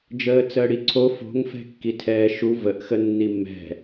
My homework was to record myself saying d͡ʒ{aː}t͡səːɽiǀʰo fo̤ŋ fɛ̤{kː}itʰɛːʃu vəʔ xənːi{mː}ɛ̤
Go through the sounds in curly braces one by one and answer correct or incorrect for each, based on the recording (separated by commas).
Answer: incorrect, correct, correct